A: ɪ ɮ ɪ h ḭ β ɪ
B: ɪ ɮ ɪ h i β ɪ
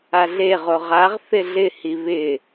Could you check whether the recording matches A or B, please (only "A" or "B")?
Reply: B